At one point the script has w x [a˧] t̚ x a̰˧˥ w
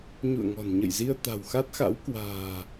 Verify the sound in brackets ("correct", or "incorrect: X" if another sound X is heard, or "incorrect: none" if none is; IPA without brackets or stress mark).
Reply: incorrect: a˦˥